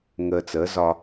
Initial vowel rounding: unrounded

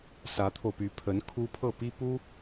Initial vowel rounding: unrounded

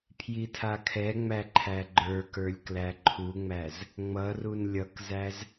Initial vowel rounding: unrounded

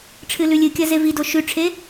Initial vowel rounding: unrounded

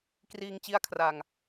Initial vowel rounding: unrounded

